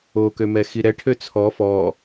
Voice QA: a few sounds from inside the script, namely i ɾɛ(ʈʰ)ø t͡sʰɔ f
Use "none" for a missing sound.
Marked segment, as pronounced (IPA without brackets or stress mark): ʈʰ